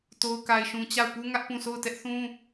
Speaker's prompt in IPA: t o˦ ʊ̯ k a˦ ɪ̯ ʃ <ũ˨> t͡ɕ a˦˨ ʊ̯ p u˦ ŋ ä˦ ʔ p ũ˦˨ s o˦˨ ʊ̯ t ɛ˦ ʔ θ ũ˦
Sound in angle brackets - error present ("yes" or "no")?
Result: yes